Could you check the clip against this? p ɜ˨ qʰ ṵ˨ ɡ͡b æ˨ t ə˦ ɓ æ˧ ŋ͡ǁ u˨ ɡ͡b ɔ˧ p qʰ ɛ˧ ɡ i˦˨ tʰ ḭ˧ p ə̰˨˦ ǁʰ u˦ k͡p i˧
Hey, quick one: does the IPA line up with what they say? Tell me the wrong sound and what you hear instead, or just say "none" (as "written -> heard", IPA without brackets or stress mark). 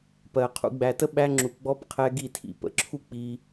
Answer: none